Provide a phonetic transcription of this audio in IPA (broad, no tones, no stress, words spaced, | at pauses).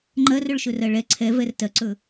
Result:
ŋ͡ǃɜrɵɭʃɵrɜ ɭɛ ǀʰɛvɛr tɜǀɵ